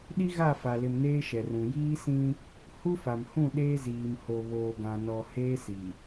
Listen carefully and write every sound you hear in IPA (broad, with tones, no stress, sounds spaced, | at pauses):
ɗ i˦ ɣ a˦˨ f a˨ l ɪ˨ m n eː˦ ʃ ɛ˨ r ũ˨ j iː˦ s ĩ˦ | h u˦ f a˨ m h ũ˦˨ ɗ eː˦ z iː˨ m h o˨ β oː˨ ɡ ã˨ n ɔ˨ h eː˦ s i˨